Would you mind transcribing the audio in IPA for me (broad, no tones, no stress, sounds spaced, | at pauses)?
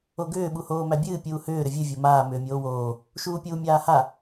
o ɡ ʏː ɓ u h oː m æ bʲ ɨː pʲ uː h ʏː ɾ ʏ vʲ ɨ vʲ o m aː m ʏː mʲ oː w oː | ʃ uː pʲ uː mʲ aː h a